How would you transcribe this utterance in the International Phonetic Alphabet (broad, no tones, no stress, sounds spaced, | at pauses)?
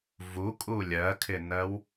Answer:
v u kʼ u lʲ ɜ kʰ ɪ n ɜ w